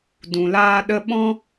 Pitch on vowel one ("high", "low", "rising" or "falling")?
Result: low